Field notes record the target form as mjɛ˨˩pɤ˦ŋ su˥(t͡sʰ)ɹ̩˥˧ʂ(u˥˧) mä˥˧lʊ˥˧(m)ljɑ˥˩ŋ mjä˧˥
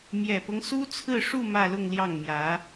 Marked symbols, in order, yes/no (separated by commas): yes, yes, no